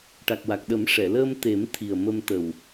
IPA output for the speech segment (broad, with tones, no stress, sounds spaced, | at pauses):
ʈ a˨˩ k̚ w a˨˩ k̚ ɗ ə˨˩˦ m ʂ ɛ˨˩˨ l əː˧ m t̪ e˨˩˦ m t̪ʰ i˨˩ ə̯ m ə˧ m t̪ ə˨˩ w